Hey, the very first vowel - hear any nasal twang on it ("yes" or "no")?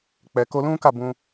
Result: no